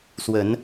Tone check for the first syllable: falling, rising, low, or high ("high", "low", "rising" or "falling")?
rising